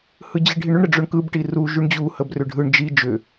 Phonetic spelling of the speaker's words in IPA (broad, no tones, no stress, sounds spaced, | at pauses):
h ɯ d͡ʑ i ɖʱ i ɳ ʏ ɳ ɾ ə ɖ͡ʐ ʊ ɳ k ɯ b ʈ i r u ʒ y ɳ d͡ʑ u h ə b r ʏ ɖʱ ɯ ɳ d͡ʒ i d͡ʒ ʏ